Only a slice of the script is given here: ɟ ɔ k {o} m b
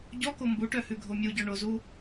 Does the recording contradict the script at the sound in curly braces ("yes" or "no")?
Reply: no